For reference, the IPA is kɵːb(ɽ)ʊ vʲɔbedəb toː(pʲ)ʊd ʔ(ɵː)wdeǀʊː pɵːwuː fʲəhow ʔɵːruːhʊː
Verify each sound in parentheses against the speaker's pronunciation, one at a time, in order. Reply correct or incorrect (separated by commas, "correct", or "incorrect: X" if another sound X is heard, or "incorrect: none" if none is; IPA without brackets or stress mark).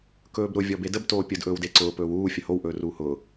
incorrect: ɾ, correct, correct